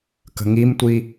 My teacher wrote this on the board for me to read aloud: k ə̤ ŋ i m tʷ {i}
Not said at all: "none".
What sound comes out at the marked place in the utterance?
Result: i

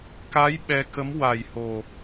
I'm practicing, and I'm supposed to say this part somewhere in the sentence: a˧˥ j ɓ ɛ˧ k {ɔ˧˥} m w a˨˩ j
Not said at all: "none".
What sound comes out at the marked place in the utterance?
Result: ə˧˥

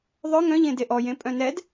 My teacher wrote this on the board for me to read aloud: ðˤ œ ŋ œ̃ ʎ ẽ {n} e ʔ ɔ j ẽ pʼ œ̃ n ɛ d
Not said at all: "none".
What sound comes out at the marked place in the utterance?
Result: d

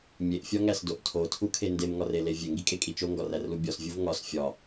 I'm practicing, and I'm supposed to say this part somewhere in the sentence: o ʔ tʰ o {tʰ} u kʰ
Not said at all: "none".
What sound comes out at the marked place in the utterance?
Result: tʰ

